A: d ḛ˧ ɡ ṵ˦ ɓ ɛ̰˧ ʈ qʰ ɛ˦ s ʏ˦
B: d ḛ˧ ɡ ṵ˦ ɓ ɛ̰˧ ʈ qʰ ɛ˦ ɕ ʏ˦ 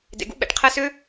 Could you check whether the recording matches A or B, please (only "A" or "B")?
A